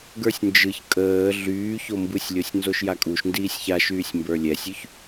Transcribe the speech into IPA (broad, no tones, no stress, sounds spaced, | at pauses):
ɡ ə˞ sʲ n d͡ʒ ɯ ç kʼ əː ɮ yː ç o m b ɯ sʲ lʲ o sʲ n z o ʃ j a kʼ u ʃ n d iː sʲ ç a ʃ yː sʲ m b ə˞ lʲ ɛ sʲ y ç